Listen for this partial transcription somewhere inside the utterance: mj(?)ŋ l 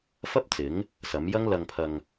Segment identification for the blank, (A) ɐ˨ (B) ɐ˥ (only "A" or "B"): B